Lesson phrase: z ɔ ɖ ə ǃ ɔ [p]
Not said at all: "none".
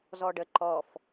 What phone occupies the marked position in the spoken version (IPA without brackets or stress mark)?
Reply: f